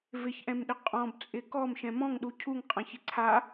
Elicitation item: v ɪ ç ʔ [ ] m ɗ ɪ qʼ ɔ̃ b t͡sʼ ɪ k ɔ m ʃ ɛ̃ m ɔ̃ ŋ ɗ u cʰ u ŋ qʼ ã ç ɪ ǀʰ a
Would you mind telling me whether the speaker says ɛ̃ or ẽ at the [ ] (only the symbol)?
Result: ɛ̃